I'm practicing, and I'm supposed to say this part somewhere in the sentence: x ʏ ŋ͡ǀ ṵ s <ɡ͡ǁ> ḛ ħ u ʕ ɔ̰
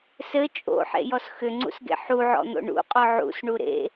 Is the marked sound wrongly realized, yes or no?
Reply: yes